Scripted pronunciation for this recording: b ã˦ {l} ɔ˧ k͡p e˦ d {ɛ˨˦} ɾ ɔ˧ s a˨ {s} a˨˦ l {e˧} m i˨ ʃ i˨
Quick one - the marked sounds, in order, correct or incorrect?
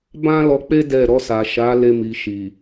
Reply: correct, incorrect: ɛ˦˨, incorrect: ʃ, correct

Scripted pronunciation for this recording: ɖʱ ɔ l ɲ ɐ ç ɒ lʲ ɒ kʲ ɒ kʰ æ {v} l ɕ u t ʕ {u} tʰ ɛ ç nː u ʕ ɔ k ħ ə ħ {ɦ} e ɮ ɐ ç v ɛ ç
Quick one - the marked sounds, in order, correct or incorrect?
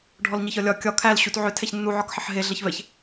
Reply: incorrect: none, incorrect: ʏ, correct

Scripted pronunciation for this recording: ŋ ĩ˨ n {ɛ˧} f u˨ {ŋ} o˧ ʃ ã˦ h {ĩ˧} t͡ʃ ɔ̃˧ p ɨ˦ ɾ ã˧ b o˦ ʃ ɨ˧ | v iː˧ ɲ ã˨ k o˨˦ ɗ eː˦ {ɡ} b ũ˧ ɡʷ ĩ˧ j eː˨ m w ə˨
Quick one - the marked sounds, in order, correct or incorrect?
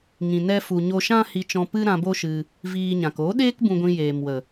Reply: correct, incorrect: ɲ, incorrect: i˧, incorrect: k

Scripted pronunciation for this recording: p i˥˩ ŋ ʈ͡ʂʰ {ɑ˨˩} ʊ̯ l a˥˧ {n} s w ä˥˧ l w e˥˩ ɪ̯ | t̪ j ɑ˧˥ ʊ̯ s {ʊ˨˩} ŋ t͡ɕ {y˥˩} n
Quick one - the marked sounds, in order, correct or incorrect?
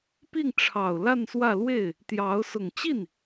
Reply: correct, correct, correct, incorrect: i˥˩

